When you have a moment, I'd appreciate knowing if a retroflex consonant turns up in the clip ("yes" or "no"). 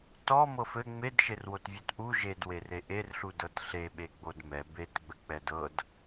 no